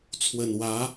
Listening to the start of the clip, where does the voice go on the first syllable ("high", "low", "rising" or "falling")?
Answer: low